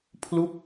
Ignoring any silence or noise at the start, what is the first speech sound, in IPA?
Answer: pʰ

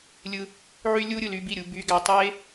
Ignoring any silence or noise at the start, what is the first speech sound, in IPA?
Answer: lʲ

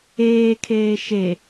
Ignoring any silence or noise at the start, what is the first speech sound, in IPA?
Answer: eː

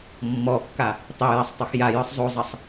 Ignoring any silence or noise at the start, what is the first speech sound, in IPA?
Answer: mː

